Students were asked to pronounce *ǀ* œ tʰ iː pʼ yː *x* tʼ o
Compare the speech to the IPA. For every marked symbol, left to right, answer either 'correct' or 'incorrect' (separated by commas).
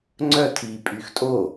incorrect, correct